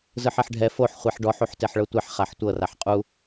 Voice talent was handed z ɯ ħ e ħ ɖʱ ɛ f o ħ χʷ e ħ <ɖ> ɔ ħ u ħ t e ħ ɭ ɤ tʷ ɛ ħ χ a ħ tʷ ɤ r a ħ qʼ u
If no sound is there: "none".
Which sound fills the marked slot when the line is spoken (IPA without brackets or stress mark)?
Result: ɖ